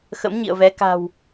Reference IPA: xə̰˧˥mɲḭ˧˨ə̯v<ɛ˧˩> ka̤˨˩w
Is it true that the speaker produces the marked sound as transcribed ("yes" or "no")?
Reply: no